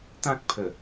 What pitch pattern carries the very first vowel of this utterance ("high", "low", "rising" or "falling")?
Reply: high